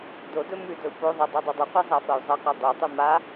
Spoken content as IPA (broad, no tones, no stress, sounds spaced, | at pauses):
d o d ɵ m ʉ d ɵ u̯ p o ðˤ ɐ dˤ e dˤ ɵ dˤ ʉ qʷ e zˤ a f ɐ u̯ zˤ ɐ q o dˤ u tˤ ʉ m a